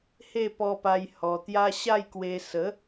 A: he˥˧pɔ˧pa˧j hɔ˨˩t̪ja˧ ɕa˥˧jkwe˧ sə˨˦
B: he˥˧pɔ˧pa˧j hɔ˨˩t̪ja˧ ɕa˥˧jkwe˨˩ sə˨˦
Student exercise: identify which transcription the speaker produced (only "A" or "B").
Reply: A